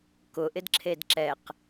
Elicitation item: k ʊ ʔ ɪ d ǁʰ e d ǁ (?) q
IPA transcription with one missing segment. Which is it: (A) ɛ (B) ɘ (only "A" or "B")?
A